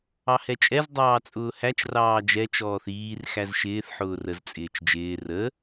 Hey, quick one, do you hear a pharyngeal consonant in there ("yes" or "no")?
yes